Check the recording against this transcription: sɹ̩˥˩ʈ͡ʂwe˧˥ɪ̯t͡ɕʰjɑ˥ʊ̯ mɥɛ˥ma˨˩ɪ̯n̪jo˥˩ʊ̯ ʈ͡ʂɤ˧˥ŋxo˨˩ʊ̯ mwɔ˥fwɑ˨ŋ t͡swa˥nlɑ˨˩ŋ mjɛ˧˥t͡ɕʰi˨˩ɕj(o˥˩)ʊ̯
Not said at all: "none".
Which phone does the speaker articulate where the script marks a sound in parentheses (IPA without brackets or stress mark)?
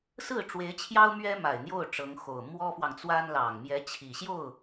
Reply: o˥˩